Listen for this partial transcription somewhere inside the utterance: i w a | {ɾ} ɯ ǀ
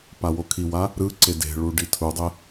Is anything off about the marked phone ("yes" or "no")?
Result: no